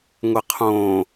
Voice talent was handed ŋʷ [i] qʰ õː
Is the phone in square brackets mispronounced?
yes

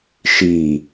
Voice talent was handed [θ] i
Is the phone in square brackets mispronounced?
yes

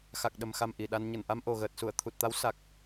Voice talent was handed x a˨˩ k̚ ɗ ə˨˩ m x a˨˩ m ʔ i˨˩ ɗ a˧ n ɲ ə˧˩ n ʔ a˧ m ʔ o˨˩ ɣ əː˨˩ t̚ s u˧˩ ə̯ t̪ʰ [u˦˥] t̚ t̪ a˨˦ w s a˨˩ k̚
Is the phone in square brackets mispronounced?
yes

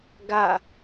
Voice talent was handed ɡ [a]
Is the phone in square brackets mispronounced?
no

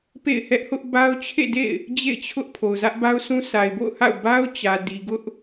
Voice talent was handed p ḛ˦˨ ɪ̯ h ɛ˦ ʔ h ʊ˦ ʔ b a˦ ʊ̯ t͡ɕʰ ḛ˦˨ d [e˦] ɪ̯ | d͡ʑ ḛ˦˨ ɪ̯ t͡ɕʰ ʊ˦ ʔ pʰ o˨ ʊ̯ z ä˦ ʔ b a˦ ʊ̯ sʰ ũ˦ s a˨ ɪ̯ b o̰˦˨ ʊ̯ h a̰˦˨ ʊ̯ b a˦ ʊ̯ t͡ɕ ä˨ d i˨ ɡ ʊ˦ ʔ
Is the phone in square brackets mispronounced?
yes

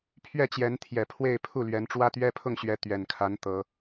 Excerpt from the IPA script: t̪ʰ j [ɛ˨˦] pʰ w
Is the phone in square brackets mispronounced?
yes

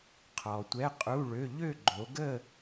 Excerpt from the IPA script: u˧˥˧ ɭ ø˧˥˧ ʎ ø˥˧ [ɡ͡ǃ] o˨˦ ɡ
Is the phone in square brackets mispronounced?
no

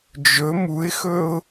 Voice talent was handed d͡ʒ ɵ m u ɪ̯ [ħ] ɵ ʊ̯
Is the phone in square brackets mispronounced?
yes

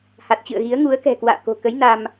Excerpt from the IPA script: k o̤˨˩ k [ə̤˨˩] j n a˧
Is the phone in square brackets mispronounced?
yes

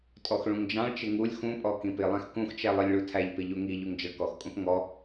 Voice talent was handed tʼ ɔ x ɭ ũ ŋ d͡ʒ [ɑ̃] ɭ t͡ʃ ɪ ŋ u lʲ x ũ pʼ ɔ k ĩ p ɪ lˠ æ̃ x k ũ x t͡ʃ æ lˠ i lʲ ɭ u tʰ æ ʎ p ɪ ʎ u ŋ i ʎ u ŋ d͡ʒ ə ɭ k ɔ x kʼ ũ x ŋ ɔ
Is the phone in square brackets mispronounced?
no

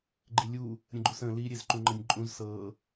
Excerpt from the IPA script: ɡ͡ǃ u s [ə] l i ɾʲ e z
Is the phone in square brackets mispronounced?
yes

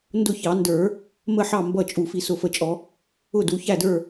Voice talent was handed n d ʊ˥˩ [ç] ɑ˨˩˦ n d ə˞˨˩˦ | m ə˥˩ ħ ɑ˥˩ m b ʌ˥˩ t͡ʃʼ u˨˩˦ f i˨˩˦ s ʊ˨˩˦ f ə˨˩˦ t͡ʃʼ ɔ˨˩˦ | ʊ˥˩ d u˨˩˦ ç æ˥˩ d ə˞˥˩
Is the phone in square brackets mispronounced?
no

